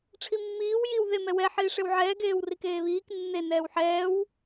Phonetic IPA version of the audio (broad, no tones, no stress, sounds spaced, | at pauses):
ʈ͡ʂʰ i mː iː w j i w ð e m ɛ w ɛ ħ iː ʂ e w ʕ ɛː ɡ eː w r i k eː β iː k nː e n ɛː w ħ ɛː w